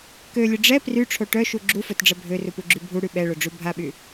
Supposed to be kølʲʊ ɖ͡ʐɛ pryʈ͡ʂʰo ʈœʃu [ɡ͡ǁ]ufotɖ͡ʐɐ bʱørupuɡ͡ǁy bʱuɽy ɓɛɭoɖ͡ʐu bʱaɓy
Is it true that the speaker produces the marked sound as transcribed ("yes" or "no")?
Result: yes